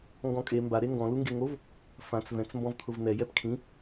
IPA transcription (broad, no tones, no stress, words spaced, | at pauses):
ŋɡɔ̃kʼe mba ɾeŋɡɔ̃ luŋɡeŋov | fãt͡s vɛ̃t͡s mbɔ̃vt̪ʰʊvn̪ɛ jɛpkʰĩ